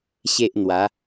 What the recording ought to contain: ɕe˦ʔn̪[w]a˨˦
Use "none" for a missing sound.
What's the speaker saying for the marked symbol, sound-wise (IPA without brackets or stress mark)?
w